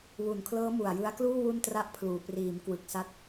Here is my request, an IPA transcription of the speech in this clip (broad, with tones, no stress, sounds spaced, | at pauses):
w u˨˩ n kʰ l ɤː˦˥ m u˨˩ a̯ j ɯ˦˥ a̯ k l uː˥˩ w u˥˩ n t r a˥˩ ʔ pʰ l uː˨˩ p r iː˩˦ m k w ɯ˨˩ k̚ s a˦˥ t̚